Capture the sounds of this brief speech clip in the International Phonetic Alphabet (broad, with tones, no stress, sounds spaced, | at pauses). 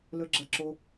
l ɵ˦ ɡ͡ǁ ɐ˦ ǁ o˦